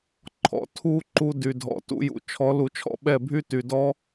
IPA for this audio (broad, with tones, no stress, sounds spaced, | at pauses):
ǃʰ ɔ̰˨ tʰ u˦ ǃ u˧ d y˨ dʱ ɔ̰˨ t ṵ˧ j ṵ˨ t͡ʃʰ ɔ˨˦ l u˨ t͡ʃʰ ɔ̰˧ ɓ ɛ˦˨ bʱ y˦ t y˨ d ɔ˦